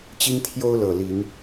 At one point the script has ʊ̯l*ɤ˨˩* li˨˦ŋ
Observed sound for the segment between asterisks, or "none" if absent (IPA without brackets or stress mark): ɤ˨˩